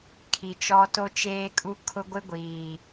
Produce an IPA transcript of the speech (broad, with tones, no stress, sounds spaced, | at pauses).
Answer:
kʰ i˨ t͡ʃ ɔ˦ t o˦ t͡ʃ eː˦ kʼ u˦ kʰ ʊ˦ ɡʷ ɪ˦ ɡʷ iː˨